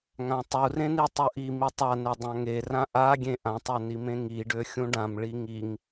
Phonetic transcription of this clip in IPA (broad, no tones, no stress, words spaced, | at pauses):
ŋãtˤurẽni tˤuʔi mitˤane dˤãŋerã ʔaɡʲẽ ʔãtˤø nimẽŋiɖø xʲũɖãm ɭiŋiŋ